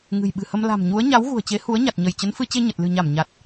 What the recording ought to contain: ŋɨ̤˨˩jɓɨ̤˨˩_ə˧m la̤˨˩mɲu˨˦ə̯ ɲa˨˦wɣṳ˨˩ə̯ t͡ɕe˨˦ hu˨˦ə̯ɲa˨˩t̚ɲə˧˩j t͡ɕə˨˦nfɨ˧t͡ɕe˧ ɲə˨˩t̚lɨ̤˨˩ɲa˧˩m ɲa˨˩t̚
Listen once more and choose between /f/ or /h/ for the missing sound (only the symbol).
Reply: h